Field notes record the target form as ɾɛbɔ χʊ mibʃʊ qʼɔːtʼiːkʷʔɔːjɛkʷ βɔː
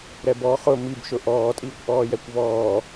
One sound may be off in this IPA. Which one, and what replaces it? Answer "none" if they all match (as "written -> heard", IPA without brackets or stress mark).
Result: qʼ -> ʔ